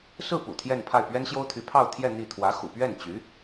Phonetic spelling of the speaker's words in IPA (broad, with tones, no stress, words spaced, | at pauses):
sɹ̩˥˩pṵ˨˩ t̪ʰjɛ˥˧npʰa˥˩ɪ̯ pɥɛ˥nɕjo˥ʊ̯t̪ʰy˧˥pʰɑ˥˧ʊ̯ t̪ʰjɛ˥˧ n̪i˥˩ t̪ʰwä˧˥xṵ˨˩ pɥɛ˥˩nt͡ɕy˧˥